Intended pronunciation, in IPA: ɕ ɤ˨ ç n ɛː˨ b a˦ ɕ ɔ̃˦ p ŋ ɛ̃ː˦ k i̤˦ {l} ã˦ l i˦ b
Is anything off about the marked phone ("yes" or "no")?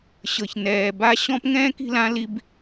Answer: no